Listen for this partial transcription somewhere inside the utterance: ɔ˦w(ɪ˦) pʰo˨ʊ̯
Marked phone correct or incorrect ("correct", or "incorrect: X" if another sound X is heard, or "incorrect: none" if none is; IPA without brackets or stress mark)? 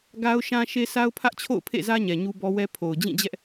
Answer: incorrect: ɛ˦